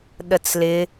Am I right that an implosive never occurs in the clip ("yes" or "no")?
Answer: no